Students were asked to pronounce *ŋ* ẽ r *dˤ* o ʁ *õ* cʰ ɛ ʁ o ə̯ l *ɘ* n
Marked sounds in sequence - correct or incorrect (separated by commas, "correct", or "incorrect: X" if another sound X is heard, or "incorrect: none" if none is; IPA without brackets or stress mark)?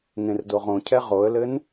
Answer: correct, incorrect: d, correct, correct